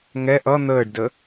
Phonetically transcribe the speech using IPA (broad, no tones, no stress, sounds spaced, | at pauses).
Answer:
ŋ ɛ ʔ ʌ n̪ əː ɖ d ə